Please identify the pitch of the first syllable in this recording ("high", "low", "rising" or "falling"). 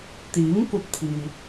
rising